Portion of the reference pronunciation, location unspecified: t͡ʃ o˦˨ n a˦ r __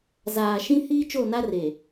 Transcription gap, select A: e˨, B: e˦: A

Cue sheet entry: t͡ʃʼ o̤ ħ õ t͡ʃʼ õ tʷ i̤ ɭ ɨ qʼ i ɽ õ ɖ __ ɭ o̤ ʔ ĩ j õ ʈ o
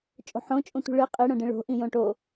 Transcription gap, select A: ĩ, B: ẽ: A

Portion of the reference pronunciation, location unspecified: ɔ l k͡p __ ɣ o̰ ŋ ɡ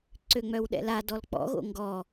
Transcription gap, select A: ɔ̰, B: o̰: A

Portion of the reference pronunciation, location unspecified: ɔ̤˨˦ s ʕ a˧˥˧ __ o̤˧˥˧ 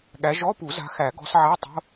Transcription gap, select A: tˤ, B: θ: A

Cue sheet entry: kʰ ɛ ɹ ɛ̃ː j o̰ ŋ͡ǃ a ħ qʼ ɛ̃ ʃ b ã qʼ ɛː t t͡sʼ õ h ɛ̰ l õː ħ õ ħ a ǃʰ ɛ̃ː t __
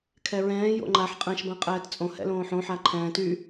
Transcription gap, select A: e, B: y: B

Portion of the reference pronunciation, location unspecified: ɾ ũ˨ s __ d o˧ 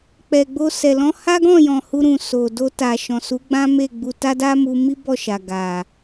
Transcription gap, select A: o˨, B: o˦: A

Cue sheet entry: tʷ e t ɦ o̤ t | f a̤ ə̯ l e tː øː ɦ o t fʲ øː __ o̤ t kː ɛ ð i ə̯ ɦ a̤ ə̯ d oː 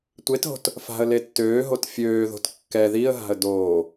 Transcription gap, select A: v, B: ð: B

